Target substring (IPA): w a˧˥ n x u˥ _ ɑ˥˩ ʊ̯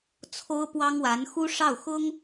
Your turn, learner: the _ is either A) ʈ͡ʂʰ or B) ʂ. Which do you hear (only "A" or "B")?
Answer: B